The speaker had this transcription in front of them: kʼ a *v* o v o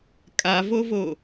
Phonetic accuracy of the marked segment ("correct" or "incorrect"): correct